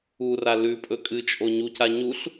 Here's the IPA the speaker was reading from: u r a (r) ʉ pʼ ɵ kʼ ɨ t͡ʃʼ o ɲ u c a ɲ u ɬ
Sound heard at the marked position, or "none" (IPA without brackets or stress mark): l